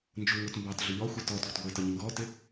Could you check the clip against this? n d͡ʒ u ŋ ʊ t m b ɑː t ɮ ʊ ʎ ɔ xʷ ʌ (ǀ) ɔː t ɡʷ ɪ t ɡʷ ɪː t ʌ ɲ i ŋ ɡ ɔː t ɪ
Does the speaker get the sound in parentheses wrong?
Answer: yes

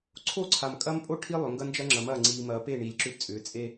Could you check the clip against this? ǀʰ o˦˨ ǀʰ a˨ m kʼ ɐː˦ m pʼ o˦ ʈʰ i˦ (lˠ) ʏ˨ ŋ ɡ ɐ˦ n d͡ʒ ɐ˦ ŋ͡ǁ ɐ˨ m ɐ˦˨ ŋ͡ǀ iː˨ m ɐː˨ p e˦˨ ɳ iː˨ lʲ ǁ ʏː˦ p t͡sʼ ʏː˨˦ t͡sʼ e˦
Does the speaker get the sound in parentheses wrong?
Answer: no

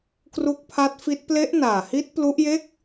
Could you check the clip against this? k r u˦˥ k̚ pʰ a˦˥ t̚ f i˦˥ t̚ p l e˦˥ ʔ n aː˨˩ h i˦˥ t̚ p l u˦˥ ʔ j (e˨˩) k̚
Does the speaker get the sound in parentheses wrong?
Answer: yes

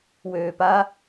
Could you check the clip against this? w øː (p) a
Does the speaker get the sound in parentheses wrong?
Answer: no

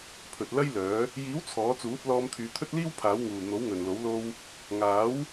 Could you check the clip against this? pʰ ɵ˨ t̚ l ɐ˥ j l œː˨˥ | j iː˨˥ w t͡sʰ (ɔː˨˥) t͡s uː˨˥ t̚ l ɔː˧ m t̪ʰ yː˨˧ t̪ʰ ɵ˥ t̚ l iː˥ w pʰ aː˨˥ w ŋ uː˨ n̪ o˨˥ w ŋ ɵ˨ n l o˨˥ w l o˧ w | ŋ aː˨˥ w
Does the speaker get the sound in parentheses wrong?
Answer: no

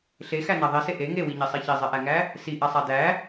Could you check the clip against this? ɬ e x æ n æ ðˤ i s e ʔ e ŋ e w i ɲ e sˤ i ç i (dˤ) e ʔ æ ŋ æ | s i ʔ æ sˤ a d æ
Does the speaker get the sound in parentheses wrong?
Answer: yes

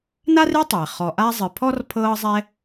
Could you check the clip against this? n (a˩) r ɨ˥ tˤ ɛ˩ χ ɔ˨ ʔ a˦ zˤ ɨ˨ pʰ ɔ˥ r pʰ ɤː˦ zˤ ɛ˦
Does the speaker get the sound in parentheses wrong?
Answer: yes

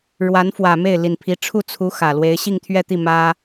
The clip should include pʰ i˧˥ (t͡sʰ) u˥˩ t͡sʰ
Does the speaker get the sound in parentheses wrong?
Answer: yes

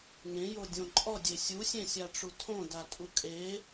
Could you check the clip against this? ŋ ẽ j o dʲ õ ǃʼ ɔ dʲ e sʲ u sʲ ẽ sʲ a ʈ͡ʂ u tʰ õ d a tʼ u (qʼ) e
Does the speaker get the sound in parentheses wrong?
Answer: yes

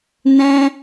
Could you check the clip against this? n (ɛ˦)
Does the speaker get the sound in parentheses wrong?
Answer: yes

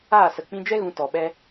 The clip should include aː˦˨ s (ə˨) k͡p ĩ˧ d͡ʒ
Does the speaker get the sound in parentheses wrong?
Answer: no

